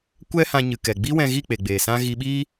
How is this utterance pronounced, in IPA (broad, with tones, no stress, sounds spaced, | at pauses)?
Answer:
kʷ ɛ˦ h ã˧ ɲ ɨ˨ k ɛ˨ ɡ͡b iː˦ w ɛ̃˧ ɣ i˦˨ k͡p e˨ ɡ͡b eː˨ s ã˦ ɣ i˧ ɓ iː˦